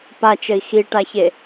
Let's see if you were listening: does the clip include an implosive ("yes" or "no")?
no